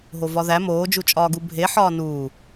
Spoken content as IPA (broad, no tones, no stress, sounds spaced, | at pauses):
ɦ o v ɒ ð æ m oː d͡ʒ u t͡ʃʼ ɒː ɡ u bʱ e ħ ɒː n uː